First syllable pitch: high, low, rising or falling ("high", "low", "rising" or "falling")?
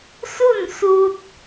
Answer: falling